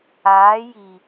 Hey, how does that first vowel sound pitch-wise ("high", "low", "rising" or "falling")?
rising